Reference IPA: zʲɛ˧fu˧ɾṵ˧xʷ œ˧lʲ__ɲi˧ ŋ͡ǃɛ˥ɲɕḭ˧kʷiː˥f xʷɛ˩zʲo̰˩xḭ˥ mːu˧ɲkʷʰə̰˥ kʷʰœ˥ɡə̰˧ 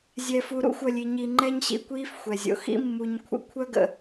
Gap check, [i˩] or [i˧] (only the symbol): i˧